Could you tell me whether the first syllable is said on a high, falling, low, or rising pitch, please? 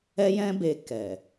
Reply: high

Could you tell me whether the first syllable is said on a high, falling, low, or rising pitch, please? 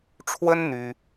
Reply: high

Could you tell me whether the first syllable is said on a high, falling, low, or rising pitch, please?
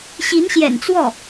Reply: rising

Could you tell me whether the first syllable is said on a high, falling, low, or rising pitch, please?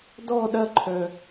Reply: falling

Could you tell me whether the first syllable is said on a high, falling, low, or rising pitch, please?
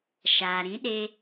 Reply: low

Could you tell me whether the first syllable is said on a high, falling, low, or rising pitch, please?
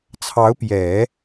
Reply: rising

